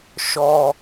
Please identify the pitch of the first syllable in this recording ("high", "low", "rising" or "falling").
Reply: low